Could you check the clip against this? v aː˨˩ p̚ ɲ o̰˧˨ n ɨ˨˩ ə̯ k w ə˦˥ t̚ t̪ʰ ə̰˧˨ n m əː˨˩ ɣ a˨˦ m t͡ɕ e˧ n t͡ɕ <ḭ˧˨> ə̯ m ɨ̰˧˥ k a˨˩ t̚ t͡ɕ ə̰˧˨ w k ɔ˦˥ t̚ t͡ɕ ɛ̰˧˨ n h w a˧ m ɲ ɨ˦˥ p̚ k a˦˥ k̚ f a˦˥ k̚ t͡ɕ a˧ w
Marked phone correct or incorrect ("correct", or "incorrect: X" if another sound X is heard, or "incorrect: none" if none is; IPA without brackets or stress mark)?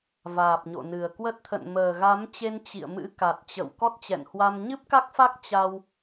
correct